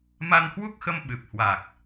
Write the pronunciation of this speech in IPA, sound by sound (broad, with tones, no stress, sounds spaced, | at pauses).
m a˧ n h w u˦˥ k̚ x ə˧ m ɓ ɨ˨˩ p̚ h w a˨˩ k̚